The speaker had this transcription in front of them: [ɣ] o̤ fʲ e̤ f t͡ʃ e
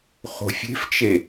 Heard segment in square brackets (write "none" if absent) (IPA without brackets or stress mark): χ